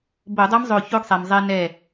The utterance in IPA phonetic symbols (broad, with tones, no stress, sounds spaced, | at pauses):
b o˧˩˧ dˤ ɤ˧˥ m zˤ o˧˩ ç o˧˥ ɡ sˤ ɛ˩ m zˤ ɛ˧ n ɛ˧˩